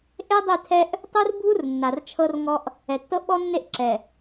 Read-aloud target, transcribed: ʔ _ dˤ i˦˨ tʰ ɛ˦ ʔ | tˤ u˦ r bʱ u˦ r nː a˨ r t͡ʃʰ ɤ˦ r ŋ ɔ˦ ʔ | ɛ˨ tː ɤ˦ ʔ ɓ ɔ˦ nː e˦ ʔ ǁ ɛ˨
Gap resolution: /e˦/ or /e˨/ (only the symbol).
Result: e˦